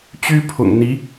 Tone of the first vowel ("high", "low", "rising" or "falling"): high